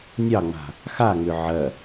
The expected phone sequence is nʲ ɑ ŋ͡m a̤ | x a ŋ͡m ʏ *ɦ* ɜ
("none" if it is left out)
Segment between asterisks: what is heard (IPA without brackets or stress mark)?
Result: ʕ